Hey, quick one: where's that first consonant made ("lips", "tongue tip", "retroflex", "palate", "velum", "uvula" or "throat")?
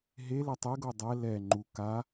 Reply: throat